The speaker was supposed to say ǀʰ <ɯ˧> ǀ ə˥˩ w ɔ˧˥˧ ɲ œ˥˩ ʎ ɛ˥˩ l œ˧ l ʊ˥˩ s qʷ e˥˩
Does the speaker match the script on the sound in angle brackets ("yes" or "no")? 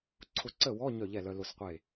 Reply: no